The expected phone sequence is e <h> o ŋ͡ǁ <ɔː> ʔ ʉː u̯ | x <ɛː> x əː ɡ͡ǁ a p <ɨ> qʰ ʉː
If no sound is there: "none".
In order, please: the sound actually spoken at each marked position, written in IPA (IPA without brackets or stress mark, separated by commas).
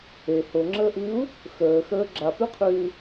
h, əː, əː, ʉ